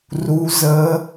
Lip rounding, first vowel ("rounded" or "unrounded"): rounded